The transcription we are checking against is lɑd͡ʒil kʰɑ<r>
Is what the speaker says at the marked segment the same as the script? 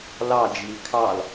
no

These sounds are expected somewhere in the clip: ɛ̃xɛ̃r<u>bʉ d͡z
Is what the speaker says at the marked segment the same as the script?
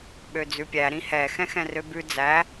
no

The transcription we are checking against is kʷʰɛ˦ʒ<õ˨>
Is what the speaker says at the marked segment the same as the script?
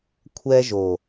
no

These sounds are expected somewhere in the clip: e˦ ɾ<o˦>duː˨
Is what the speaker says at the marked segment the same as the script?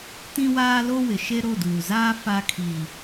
no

